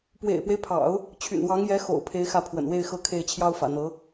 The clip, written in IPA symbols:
p w ḛ˨˩ ɪ̯ p w e˦ ɪ̯ pʰ ɑ̰˨˩˦ ʊ̯ | t͡ɕʰ y̰˨˩ n w ɑ˧˥ ŋ j ɛ˧˥ x o̰˨˩ ʊ̯ pʰ e˧˥ ɪ̯ x ä˥˩ pʰ w ə̰˨˩ n w e˥˧ ɪ̯ x ɤ˥˧ kʰ e˥˩ ɪ̯ t͡ɕʰ j ɑ˥ ʊ̯ f ä̰˨˩ n̪ ɤ˧˥

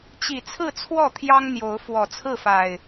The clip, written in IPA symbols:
t͡ɕ i˨˩ t͡sʰ ɹ̩˥˨ t͡sʰ w ɔ˥˨ t̪ʰ j ɑ˦ ŋ n̪ j o˨˦ ʊ̯ f w ɔ˨˩ t͡sʰ ɹ̩˥˨ f a˨˩ ɪ̯

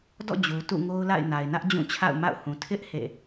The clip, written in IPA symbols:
d ɔ̰˦˨ d͡ʑ u˨ t ṵ˦˨ ŋ o˦ ʊ̯ l a̰˦˨ ɪ̯ n a˨ ɪ̯ n ä˦ ʔ d͡ʑ ũ˦˨ t͡ɕʰ a̰˦˨ ʊ̯ m a̰˦˨ ʊ̯ h ũ˨ tʰ ɪ˦ ʔ h ḛ˦˨

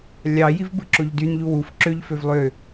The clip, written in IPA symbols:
lʲ ɑ j i v b ɯ ǁ o ʎ d y n ʎ u w u f ǁ ø ʎ f ø v lˠ ø

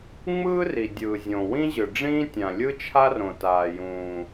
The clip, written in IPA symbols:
ŋ͡m ɯː˥ r i˩ dʲ ɯː˩ zʲ õ˩ w ĩ˥ ʑ ɯ˩ ɖ͡ʐ ĩː˥ tʲ ã˩ lʲ ɯ˥ t͡ʃʰ a˥ r õ˩ t aː˩ j ũː˩

